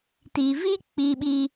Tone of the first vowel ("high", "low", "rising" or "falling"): low